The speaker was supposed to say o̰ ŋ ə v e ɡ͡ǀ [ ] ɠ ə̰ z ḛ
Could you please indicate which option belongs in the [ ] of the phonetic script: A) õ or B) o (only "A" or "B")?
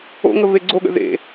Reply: B